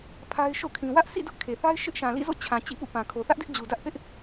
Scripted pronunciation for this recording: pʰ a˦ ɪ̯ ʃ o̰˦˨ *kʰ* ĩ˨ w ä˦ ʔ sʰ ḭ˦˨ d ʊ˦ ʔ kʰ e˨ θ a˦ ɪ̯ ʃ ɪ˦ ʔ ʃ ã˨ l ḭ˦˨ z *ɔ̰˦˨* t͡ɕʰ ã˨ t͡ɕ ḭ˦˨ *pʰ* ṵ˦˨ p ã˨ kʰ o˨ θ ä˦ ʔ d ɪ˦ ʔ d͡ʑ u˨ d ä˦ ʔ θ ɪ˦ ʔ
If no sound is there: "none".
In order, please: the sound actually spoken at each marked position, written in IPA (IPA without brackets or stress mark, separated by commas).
kʰ, o̰˦˨, p